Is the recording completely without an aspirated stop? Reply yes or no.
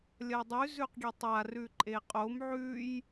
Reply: yes